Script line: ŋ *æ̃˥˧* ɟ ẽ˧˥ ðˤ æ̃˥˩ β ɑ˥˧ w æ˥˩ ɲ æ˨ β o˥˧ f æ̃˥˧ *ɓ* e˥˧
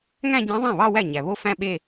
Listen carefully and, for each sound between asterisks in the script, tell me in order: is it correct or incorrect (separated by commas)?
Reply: correct, correct